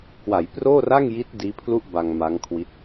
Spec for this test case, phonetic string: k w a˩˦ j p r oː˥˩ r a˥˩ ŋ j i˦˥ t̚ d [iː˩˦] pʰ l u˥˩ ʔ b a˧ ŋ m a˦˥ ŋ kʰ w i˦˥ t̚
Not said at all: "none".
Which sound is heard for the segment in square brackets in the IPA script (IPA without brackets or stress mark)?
iː˦˥